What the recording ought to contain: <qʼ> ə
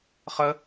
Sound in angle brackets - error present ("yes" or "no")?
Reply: yes